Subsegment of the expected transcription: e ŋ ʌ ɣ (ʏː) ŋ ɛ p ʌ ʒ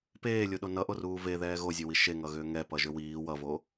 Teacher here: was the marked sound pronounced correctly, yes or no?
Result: yes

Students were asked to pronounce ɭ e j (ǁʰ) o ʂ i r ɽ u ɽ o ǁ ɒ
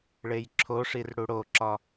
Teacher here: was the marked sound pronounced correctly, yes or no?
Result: yes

